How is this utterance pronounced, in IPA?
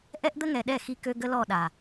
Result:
ʔ ɛ˦ ʔ d̪ ə˦ ŋ ɛ˨ ɗ ɛ˦˨ x i˧ k ø˧ ɡ ə˦ l ɔ˦˨ ɗ a˨

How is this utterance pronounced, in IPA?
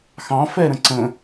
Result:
x ɑ̃ f ɛ ɾ ə̃ ǀ ə̃

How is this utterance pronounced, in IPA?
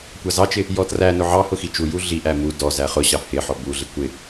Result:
kʷ ɑ z ɑ t͡ʃ ɪ | j ɔ t r æ n ʊ ʕ ɑ h ʊ x i t͡ʃ u j u ɮ i ʔ æ m u d ɔ z æ χ ʊ ɕ ɑ h ɪ ħ ɔ b u ɮ ɪ kʷ ɪ

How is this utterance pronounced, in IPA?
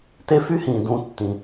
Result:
t e˦ f y˦ h ĩː˨ d ũ˧ tː ĩ˨

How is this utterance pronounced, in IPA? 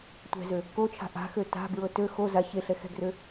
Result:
tʷ ɛ̤ z ø | k o t͡ʃʰ a̤ ʔ a̤ x ø t a̤ b ɹ ɤ t ø x o z a ç e ɬ ɛ x ɛ̤ ɡ r ø

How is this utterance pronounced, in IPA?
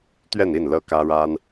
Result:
t̪ ɥ ɛ˥˧ n i˥˩ n l ɤ˥ k ä˥ ɻ a˥ n

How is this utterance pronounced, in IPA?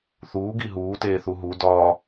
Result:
θ uː ɡ i ɦ uː t eː θ u ɦ u d ɒː

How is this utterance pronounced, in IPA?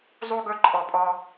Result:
zˤ u˦ ɡ ɵ˦ ǃʼ ɔ˧ pʼ ɔ˧

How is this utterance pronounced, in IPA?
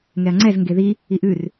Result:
ŋ ɛ ɐ̯ ŋ͡ǀ ɛ z ŋ ɡ e ð i | i ʔ ʉ r

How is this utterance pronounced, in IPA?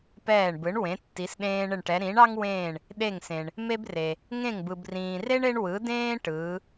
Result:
p ɛː˦˨ ɳ b ɯ˨˥ ɳ w ẽ˨˥ tː i˨˥ s ɗ ẽː˥ ɳ ɪ˦˨ ɳ ʈ ɛ˨˥ ɾ ĩ˨˥ ɳ ɑ˥ ŋ w ẽː˦˨ ɳ | ɗ e˦˨ ŋ s ẽ˨ ɳ | m e˥ b r e˨ | ŋ ẽ˦˨ ŋ b ɯ˨ b r ĩː˨ r e˥ ɳ e˥ ɳ w ɯ˨˥ d ẽː˥ ʈ ɯː˨˥

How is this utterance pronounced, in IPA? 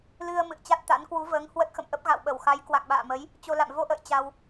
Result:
l ɨ˧ ə̯ m ɨ̰˧˨ ə̯ t͡ɕ a˦˥ t̚ t̪ a̰˧˥ n k w u˨˦ v əː˨˦ ŋ h w ə˦˥ t̚ x ə̰˧˨ m ʔ ə˦˥ p̚ ɣ a̰˧˨ w ɓ ə˧˩ w x a˨˦ j k w a̰˧˨ ŋ ɓ a̰ː˧˨ m ə˨˦ j | t͡ɕ o˧ l a̰˧˨ m v o˧ ʔ ə̰ː˧˨ j t͡ɕ a˧ w

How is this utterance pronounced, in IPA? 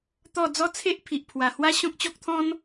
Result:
t̪ ɔ˥˧ d͡z ɔ˥˧ t͡sʰ e˦ ʔ pʰ i˨ ʔ pʰ w a˨˩ h w a˦ ɕ ɔ̃˦ k̚ t͡ɕ ɔ˦ k̚ t̪ʰ ɔ̃˦ n

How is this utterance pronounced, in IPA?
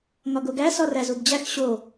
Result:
ŋ ɒ ɡ o ɡ æ s ɒ r æ z u b d͡ʑ æ x ɕ o

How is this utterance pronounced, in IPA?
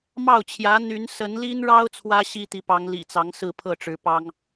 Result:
m ɑ˥˩ ʊ̯ t͡ɕʰ j ä˧˥ n̪ y˧˥ n s ə˧˥ n l i˥ n ɻ ɑ˥ ʊ̯ t͡sʰ w ä˥ ɕ i˥ t̪ i˧˥ p ɑ˧˥ ŋ l ḭ˨˩ t͡s ɑ˧˥ ŋ s ɹ̩˥˧ pʰ ɤ˥˩ ʈ͡ʂ ɻ̩˧˥ p ɑ˥ ŋ

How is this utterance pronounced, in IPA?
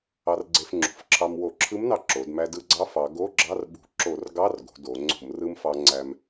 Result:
ɑ˧ r ɡ͡ǀ e˧ f ŋ͡ǁ ṳ˩˧ f ǁʰ ɑ˧ m w o˧˩˧ ǁʰ ɯ˧˥ m n ɑ˧ ǁ o˩˧ d m æ˧ d ɯ˧ ɡ͡ǀ ɑ˧˥ f ɑ˩˧ ɡ o˧˥˧ ɡ͡ǁ ɑ˧˥˧ r ɓ ṳ˧˩˧ ǁ o˧˩˧ r ɡ ɑ˧˥˧ r ɡ o̤˩˧ d o˩˧ ŋ͡ǀ o̤˧˩˧ m r ɯ˧ m f ɑ˧ ŋ͡ǀ æ˧ m

